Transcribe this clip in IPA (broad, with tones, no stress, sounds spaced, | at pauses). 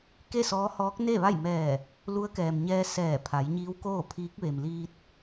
k e˥˨ s ɔː˧˥ h ɔː˧˥ k̚ n e˥˨ ʋ a˥˨ j m ɛː˧˩ | l u˧˥ ə̯ k ɛː˩ m ɲ ɛː˧ s ɛː˧˩ pʰ a˩˧ j ɲ iː˧˥ w k oː˥˨ pʰ iː˧˥ k̚ ʋ e˩ m l iː˧ t̚